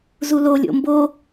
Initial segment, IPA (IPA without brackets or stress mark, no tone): z